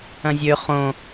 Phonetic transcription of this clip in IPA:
ɐ̃zʲø χõ

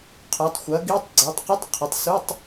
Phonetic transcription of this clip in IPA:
qʰœ˩˥tˤxʷɐ˩˥ɡi˧˥˧tˤɡ͡ǀœ˩˥tˤ qə˧˥˧tˤqʰə˩˥tˤsu˧˥˧tˤ

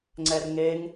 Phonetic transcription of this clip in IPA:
ŋ͡ǀɛrŋeŋ

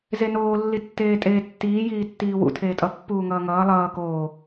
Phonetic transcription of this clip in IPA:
zenoː lːitːeːtʼeːtːiː jiːtːiːwṵ tʰeːtʼʌ pːuːŋʌːŋʌː lˠʌː koː

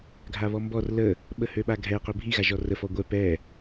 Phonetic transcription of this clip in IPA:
ɡʱaβɔmbɔr lə | ɓəhøɓaɡʱɛ qøbʱi ɣaʒɔrə fɔɡʷɛ pɛ

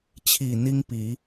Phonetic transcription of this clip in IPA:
t͡ɕʰi˨˩ n̪i˦ŋpi˨˦

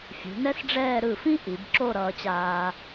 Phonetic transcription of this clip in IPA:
fʲṳ˩˧nɛ˥sɖ͡ʐɛː˥˧ ɾɯ˧˩fĩ˥ ʔi˩˧bǁo˥˧ɾʌː˧t͡ɕaː˧

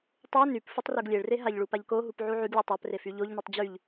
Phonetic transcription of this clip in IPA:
tˤo nyp futˤroɡlʲeɭre ɦaʎɭu paʎkoɦup ʕuʕyɡlʲo tˤapre fyʎoʎnytˤ d͡ʑyʎ

